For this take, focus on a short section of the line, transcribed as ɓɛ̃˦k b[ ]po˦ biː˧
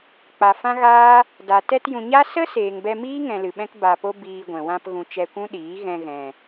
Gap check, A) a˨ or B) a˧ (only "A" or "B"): B